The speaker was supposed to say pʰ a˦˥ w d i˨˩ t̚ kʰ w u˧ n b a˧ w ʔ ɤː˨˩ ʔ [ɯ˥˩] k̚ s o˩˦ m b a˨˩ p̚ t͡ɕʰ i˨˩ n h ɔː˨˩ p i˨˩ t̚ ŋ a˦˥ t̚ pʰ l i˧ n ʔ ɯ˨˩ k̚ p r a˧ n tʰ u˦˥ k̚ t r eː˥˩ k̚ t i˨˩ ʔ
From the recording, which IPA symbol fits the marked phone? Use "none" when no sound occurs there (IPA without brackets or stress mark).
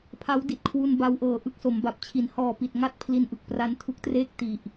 ɯ˥˩